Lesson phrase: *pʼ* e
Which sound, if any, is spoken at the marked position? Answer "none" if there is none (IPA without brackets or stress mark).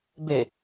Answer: b